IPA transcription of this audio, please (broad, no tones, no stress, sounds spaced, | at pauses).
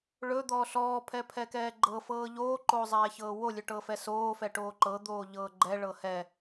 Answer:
ɭ ɵ d̪ ɔː ɬ ɔː pʰ ɛ pʰ ɛ k ɛː ɡ͡ǃ ɤ f ɤː ʎ oː ǃ oː zˤ ɛː ç ɤː w o lʲ ɵ ʈ ɤ f ɛ s oː f ɛ ʈ oː ǃ ɤ d̪ oː ʎ ɤː ɡ͡ǃ ɛ ɭ ɤ h ɛ